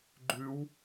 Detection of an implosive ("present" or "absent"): absent